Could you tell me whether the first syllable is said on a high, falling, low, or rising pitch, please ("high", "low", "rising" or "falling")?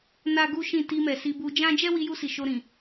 high